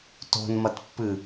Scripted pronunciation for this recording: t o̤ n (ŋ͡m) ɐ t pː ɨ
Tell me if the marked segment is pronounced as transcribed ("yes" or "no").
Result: no